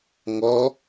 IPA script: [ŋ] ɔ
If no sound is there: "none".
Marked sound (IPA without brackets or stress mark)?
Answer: ŋ